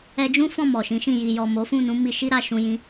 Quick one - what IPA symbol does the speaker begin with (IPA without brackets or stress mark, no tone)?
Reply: ɛ